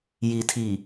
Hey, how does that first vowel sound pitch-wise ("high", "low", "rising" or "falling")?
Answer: low